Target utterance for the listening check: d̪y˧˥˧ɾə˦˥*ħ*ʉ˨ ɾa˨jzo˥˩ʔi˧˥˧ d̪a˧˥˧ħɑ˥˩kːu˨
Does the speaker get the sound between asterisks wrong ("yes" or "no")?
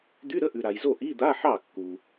yes